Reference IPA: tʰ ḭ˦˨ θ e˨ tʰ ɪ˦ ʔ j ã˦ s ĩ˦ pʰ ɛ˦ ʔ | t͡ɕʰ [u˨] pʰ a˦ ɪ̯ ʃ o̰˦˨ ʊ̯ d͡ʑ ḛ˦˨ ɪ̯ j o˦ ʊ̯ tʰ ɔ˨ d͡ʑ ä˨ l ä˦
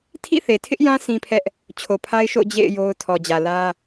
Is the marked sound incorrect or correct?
incorrect